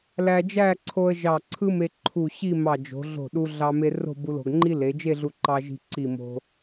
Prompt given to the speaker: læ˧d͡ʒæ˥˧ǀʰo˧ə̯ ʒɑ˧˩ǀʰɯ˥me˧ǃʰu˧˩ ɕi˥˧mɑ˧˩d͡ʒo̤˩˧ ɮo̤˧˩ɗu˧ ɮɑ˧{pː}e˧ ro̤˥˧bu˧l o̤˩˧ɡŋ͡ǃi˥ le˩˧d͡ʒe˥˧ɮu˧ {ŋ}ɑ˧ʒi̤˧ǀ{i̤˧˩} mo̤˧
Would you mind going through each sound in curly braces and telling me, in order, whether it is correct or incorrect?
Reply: incorrect, incorrect, incorrect

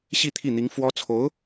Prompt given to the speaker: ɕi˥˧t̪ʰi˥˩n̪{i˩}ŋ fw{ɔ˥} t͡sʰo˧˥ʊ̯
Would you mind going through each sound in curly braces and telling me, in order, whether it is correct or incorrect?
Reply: incorrect, correct

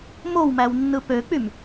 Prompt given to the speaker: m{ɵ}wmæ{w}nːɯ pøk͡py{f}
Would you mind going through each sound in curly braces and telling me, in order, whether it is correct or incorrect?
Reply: incorrect, correct, incorrect

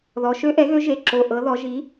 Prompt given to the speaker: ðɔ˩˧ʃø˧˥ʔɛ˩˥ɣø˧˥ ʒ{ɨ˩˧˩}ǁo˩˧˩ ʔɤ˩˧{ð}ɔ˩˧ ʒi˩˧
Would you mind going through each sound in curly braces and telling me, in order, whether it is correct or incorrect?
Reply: incorrect, correct

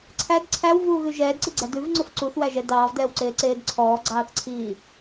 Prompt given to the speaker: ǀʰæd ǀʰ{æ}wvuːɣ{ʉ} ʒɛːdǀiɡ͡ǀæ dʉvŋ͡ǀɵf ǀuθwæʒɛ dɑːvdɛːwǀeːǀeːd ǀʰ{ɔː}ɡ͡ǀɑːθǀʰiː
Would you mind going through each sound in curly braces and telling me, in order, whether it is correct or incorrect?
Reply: correct, correct, correct

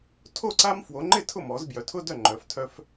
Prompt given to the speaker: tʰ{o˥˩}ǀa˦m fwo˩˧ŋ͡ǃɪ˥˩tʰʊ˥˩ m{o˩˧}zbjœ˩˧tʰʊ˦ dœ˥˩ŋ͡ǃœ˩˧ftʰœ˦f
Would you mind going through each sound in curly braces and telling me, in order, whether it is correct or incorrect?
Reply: correct, incorrect

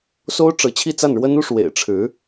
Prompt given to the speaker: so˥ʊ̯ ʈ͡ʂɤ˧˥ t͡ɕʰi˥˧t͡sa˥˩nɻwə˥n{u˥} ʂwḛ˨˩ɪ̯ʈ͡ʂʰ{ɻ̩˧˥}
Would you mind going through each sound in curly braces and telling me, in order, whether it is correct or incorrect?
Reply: correct, correct

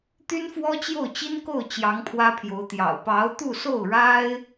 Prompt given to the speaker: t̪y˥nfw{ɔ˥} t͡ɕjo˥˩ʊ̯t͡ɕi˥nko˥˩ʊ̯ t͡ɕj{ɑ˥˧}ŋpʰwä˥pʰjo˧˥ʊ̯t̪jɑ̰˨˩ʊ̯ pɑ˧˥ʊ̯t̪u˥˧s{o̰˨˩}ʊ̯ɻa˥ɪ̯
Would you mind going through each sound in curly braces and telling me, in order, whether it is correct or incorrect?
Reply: correct, incorrect, incorrect

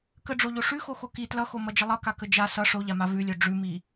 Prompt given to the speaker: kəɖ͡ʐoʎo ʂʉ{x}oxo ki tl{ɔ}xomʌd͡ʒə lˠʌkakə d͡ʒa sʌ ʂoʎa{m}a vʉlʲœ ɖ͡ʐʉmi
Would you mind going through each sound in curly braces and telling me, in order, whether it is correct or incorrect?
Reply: correct, incorrect, correct

